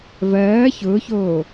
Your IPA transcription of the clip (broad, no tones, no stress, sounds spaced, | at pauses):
v ɜː ç ʊː ç oː